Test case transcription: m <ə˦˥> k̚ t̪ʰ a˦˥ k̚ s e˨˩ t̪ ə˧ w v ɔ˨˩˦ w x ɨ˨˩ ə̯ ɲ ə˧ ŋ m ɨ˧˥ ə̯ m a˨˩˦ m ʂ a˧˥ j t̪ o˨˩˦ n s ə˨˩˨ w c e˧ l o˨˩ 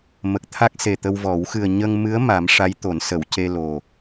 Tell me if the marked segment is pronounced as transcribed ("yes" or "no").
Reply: no